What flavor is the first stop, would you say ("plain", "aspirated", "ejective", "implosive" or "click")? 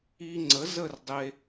click